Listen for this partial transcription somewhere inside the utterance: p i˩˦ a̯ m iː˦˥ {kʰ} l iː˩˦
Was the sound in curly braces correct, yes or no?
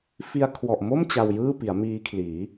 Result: yes